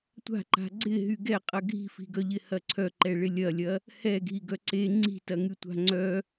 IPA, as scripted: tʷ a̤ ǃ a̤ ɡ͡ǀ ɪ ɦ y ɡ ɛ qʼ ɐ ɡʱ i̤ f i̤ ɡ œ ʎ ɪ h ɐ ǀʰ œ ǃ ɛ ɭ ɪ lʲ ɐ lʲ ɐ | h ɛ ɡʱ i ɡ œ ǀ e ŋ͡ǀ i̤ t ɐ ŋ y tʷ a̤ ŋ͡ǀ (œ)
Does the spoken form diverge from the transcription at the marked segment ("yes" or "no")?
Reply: no